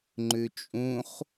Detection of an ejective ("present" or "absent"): present